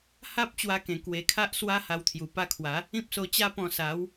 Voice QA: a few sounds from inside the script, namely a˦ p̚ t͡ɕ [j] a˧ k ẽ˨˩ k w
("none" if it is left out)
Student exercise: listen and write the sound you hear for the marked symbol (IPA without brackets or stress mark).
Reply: w